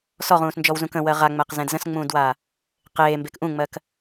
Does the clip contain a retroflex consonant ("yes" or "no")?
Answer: no